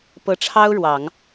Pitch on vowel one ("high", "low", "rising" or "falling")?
rising